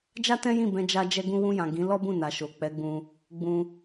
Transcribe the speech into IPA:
d͡ʒa˦tɛ̃˦jĩ˦˨ bɛ̃˧ d͡ʒa˧ d͡ʒɛ˧ɡũ˧wũ˧jã˨ ɡĩ˨˦ lɔ˦bũ˦˨na˨ ʃo˨k͡pɛ˨˦ɡ͡bũ˧ | ɡ͡bũ˧

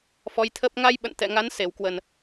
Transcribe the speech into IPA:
fɔ˨˦jt̪ʰəː˦˥p̚ ŋa˧jɓə̰˧˨n t̪ɛ̰˧˨ ŋa˨˦nse˧˩wkwə˨˩n

